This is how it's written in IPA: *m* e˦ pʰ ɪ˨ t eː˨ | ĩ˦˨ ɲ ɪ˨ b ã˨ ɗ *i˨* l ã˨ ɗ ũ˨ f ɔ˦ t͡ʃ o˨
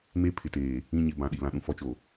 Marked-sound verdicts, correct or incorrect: correct, correct

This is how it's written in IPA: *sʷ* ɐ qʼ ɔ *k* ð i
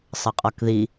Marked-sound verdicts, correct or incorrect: incorrect: sˤ, correct

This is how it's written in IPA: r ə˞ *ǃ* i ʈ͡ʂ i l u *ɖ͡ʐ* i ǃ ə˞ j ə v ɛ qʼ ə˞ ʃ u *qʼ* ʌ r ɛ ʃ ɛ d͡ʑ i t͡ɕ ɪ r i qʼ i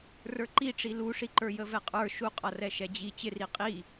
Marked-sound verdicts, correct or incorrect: correct, incorrect: ʂ, correct

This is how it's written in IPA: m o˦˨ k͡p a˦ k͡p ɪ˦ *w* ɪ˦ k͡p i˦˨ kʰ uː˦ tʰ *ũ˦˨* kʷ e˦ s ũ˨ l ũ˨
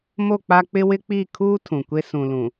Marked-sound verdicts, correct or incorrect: correct, incorrect: ũ˨

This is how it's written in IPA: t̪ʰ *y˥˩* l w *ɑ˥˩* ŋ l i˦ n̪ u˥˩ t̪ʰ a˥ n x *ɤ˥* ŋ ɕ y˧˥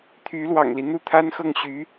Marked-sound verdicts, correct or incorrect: incorrect: y˧˥, incorrect: ɑ̰˨˩, incorrect: ɤ˥˩

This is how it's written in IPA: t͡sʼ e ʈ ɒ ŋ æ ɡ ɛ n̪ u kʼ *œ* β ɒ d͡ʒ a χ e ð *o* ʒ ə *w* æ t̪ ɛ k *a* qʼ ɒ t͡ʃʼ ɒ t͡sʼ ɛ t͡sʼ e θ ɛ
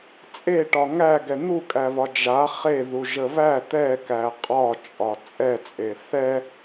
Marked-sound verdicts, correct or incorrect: incorrect: æ, incorrect: u, incorrect: β, incorrect: æ

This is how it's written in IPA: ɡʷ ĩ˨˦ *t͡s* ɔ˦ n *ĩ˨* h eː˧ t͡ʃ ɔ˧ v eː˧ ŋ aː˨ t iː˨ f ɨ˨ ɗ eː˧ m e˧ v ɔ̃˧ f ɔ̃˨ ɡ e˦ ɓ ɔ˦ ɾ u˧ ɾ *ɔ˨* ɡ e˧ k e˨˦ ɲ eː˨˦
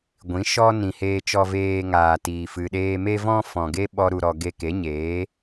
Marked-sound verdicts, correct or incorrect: incorrect: ʃ, correct, incorrect: ɔ˧

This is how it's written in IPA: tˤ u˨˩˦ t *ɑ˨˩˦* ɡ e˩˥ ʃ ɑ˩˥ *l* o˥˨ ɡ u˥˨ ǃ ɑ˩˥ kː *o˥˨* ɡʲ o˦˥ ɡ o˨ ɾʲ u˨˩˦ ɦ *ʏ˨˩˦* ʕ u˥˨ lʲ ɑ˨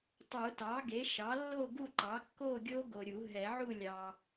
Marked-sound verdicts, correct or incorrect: incorrect: ɑ˩˥, incorrect: lː, correct, incorrect: ɛ˨˩˦

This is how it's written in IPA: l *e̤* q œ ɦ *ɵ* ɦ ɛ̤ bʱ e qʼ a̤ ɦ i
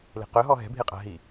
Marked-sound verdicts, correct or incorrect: correct, incorrect: ɔ

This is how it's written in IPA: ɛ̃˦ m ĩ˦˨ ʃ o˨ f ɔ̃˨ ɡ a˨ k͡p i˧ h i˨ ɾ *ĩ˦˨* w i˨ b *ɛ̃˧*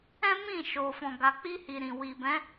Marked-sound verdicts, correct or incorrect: incorrect: ĩ˨, incorrect: ɛ̃˨˦

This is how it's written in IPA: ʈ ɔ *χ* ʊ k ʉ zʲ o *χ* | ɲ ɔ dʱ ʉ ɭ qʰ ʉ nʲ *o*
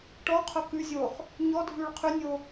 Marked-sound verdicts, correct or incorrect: incorrect: qʰ, correct, correct

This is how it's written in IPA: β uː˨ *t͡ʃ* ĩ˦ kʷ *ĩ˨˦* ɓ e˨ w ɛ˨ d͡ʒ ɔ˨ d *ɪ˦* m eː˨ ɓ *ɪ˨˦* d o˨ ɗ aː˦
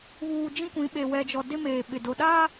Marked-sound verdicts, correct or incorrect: incorrect: d͡ʒ, correct, correct, incorrect: ɪ˨

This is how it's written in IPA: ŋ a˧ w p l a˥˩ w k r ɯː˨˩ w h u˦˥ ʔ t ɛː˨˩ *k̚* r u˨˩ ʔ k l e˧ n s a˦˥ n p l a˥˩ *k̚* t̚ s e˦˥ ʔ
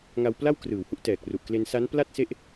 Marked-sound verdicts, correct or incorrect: correct, incorrect: none

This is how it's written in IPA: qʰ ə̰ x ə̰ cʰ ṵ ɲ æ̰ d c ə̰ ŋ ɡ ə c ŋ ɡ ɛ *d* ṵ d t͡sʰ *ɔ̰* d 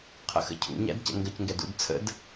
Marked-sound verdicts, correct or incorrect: correct, incorrect: ə̰

